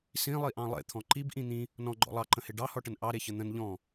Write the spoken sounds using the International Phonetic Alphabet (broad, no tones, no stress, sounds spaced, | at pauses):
s ĩ lˠ i ʔ ɑ̃ lˠ ḛ t̪ʰ ɔ̃ ǃ i b ʔ ĩ n̪ ĩ | n ɔ̃ ɡ͡ǃ ɔ̰ lˠ ɑ ǃ ə̃ h e ɖ ɑ h ɔ ʈ ə n ʔ ɑ ɾ e ç ə n̪ ə̃ n ʎ ɔ̃